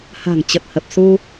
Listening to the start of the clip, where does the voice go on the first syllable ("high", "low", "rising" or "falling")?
low